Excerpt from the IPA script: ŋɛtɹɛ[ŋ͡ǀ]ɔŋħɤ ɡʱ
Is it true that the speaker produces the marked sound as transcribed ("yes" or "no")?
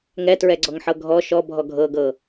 no